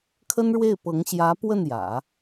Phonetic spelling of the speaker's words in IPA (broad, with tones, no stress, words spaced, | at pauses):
kʰə˥nɻwe˥˩ɪ̯pɤ˧˥ŋ ɕjä˧˥ pwə˥˩njä̰˨˩˦